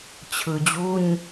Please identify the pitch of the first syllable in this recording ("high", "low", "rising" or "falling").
low